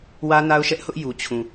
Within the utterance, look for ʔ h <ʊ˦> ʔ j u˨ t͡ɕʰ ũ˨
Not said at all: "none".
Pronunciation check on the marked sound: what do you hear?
ʊ˦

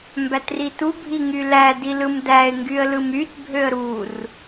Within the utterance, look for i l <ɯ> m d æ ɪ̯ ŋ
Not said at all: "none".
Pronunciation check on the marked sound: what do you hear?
ɯ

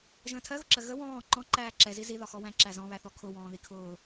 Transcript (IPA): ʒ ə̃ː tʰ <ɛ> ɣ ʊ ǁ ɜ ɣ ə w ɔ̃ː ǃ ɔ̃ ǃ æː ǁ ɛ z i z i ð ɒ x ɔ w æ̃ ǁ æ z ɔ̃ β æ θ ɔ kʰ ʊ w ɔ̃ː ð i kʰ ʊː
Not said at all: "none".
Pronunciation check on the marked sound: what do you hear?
ɜ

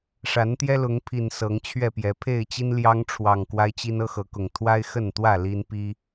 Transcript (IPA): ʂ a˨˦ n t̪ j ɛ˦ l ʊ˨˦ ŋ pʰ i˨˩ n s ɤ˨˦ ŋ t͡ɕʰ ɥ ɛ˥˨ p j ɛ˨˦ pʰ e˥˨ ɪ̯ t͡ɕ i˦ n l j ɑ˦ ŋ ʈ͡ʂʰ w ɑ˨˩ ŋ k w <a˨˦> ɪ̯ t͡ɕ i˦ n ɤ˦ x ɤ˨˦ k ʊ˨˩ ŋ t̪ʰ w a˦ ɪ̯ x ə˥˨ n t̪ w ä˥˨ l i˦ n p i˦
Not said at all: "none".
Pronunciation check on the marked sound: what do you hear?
a˦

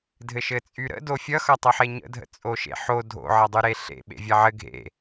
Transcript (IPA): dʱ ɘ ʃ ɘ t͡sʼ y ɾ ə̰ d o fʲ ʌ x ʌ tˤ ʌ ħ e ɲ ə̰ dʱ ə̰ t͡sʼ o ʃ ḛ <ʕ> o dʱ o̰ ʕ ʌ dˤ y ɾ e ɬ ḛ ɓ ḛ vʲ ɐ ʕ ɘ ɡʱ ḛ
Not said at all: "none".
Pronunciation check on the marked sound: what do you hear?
ħ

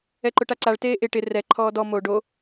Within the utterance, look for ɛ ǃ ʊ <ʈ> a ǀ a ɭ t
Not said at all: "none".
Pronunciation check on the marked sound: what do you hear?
ʈ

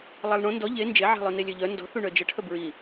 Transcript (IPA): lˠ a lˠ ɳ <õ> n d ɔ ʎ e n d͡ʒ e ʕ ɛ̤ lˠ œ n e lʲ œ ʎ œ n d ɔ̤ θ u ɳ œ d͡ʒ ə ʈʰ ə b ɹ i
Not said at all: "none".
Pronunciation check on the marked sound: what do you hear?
õ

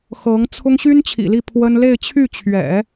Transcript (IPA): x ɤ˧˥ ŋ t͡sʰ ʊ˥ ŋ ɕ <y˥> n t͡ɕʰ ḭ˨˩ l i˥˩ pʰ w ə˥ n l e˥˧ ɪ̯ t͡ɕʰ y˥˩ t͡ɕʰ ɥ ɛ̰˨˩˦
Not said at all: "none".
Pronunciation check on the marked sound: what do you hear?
y˥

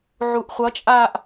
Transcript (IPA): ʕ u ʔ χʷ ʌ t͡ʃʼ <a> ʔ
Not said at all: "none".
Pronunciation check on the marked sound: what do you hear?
a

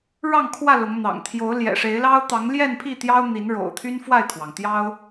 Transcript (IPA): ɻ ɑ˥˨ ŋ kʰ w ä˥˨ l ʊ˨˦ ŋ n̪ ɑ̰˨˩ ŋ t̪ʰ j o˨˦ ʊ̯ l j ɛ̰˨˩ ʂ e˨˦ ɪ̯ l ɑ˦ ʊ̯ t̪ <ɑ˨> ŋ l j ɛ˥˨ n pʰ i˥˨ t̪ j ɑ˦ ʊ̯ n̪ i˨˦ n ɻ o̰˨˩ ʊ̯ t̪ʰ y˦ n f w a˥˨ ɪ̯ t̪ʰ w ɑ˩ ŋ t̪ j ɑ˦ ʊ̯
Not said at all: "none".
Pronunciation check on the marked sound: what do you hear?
ɑ˨˦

